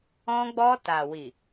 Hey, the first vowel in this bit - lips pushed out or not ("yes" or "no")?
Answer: yes